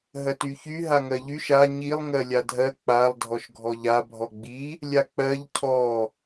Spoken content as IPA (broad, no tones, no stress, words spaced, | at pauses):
ɦɜtyçy ɦaŋɜʎyʃ a ɲilˠ ŋɜlʲadʱɜ k͡palˠ dʱɔʃɡʱɔʎa bʱɔɡ͡bi | lʲak͡pɜʎ cʰɔ